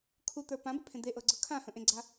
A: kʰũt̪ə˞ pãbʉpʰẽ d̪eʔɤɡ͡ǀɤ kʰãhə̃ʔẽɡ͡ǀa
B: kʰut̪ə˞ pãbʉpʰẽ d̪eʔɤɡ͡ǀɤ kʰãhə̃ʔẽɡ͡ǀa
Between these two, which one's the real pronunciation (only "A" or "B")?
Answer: B